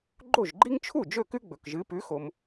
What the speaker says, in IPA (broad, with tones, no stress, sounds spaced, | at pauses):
ɡ͡ǃ o˥˩ ʒ ɡ͡ǃ i˥ ŋ t͡ʃʰ u˥˩ d͡ʒ ɵ˥˩ k ʉ˥ ɡ͡b ɵ˩ k ʒ ɨ˩˥ p ʉ˩˥ x o˩ m